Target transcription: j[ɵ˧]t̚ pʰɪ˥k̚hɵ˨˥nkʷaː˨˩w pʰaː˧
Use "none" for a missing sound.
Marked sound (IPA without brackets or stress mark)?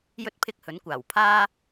ɵ˧